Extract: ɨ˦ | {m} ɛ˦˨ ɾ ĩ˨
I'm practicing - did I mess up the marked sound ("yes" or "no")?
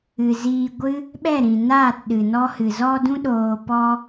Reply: yes